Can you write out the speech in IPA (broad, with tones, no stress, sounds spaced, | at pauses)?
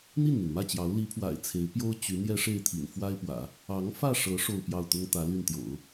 n̪ i˥˩ n n̪ i˩ n m ä˥˩ t͡ɕ j ɑ˧˥ ʊ̯ l i˧˥ pʰ w a̰˨˩ ɪ̯ t͡sʰ e˧˥ ɪ̯ p j o˥ ʊ̯ t͡ɕ y˧˥ n̪ j ɛ˥ ʂ e˥˩ ɪ̯ t̪ʰ ḭ˨˩ n f w a˥ ɪ̯ p w ä̰˨˩˦ | ɑ˧˥ ŋ f ä˥˩ ʂ ɤ˧˥ ʂ o˥˧ ʊ̯ p j ɑ˥˩ ʊ̯ t̪ ʊ˥ ŋ t̪ ä˧˥ l y˥˩ n t̪ j o̰˨˩˦ ʊ̯